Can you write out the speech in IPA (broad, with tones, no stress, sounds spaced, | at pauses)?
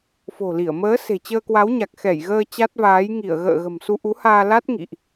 f o̤˨˩ l i˧˩ ə̯ m əː˨˦ s e̤˨˩ t͡ɕ əː˧ k w a˨˦ w ɲ a˨˩ k̚ x ɛ˧˩ j ɣ əː˧ t͡ɕ a˦˥ t̚ v aː˨˦ j ŋ i˧˩ ə̯ ɣ ə̰ː˧˨ ɣ ə̤˨˩ m s u˧ ʔ u˨˦ h aː˧ l a˦˥ t̚ ŋ ḭ˧˨ ʔ